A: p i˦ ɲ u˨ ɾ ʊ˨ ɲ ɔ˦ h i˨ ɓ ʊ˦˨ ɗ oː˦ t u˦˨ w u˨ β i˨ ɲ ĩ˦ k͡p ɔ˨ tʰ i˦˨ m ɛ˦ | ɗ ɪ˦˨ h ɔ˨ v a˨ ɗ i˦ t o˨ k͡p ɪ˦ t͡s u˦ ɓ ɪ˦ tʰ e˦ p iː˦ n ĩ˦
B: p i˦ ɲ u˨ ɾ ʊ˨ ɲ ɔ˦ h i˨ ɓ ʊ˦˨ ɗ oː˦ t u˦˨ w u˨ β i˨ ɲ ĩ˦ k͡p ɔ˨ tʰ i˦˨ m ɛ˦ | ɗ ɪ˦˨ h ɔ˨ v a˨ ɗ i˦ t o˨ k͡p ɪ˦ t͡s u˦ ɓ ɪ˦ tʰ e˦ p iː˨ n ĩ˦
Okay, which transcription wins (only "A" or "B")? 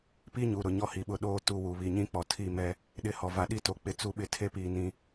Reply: B